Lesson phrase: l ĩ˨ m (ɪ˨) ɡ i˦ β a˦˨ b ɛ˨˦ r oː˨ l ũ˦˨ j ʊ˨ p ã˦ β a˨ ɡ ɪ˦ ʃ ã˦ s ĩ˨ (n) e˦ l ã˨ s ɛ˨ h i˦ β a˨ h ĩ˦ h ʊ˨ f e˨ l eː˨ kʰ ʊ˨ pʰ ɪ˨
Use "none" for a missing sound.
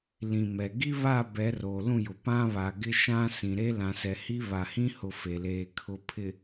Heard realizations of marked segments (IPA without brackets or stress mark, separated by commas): ɛ˨, ɾ